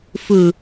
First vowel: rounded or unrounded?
rounded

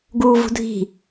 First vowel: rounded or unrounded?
rounded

